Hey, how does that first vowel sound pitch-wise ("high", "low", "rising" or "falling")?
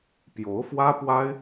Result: rising